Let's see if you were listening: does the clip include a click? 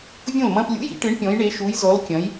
no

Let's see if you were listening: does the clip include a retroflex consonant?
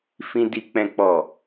no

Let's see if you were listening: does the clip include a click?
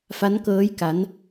no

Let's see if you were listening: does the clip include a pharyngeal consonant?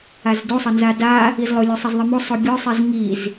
no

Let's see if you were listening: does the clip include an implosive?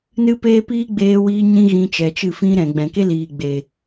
no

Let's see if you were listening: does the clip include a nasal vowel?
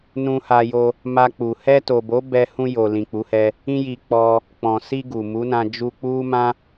yes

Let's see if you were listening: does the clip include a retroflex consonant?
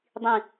no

